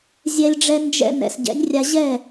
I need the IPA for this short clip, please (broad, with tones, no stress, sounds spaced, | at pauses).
zʲ ɛ˧ lʲ ɖ͡ʐ ɛ˧ n d͡ʒ ɛ̰˧ n ɛ̰˨ s ɟ ɛ̰˨˦ nʲ rʲ a˧ ʑ ɛ˦˨